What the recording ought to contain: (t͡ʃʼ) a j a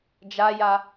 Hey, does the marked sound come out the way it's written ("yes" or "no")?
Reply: no